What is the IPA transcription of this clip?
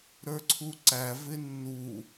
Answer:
ɾə˞ǀʰuǀæ vɪnːu

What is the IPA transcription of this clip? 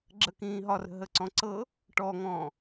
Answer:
ɡ͡ǁəkĩː ɦɒrə̤ɦəǀɔ̃ ǀɤ | ʈɔŋɔ̃ː

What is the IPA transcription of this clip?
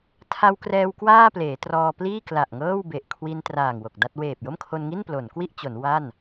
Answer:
tʰa˧wkrɛː˧w kwaː˥˩ pleː˩˦trɔː˧pliː˥˩ kla˨˩ʔŋɤː˥˩wbe˨˩ʔ kʰwi˧n traː˨˩ŋ wo˨˩k̚da˥˩t̚ weː˨˩p̚jo˥˩mkʰo˧nŋi˥˩n plo˩˦nkwi˥˩ʔt͡ɕo˩˦n wa˥˩n

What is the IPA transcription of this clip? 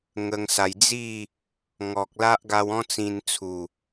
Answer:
ŋə˧ŋsa˧j d͡zi˥˧ | ŋɔ˨k̚ la˦ʔɡa˧wɔ̃˦ t͡sĩ˧nt͡sʰu˨˩

